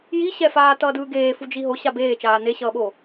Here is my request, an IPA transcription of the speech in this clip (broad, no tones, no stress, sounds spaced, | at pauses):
j i ɕ ɛ f aː t ʌː d ɯː ɡ eː f u d͡ʒ i ɦ o ɕ a b eː t͡ʃ aː n e ɕ ʌː ɓ o